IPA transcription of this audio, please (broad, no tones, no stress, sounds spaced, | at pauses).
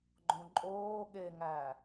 ɡ͡ǃ õ ǃʼ oː ɠ e ŋ æ